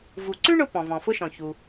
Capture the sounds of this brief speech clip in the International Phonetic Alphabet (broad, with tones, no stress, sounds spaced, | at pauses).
v u˩ ǀ ʉ˥ ɳ ʊ˧ p ɔ̃˩ v ɔ̃˩ f ʊ˧ ʃ ɔ̃˩ ç u˩